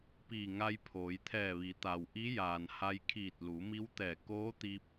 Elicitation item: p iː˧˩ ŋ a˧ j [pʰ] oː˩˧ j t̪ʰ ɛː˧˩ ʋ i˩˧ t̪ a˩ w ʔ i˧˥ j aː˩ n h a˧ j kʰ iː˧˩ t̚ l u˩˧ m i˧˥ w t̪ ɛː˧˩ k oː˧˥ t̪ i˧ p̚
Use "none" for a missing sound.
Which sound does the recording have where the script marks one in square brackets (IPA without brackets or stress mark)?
pʰ